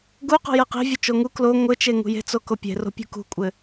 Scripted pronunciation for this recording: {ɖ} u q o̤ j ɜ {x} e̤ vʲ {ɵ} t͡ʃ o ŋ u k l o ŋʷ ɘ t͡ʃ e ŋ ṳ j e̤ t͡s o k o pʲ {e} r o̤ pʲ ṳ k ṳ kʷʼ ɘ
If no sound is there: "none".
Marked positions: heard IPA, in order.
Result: ɡ, q, ɵ, e̤

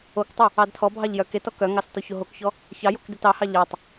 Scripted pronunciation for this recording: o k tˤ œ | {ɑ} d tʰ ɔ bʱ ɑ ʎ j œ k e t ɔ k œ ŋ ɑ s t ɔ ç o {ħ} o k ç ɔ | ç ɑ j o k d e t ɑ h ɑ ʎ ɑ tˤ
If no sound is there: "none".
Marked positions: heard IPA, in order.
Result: ɑ, ɦ

